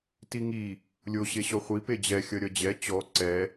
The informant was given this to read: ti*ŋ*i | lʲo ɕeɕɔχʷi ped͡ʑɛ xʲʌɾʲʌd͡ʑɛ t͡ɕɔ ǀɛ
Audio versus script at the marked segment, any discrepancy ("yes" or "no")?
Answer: no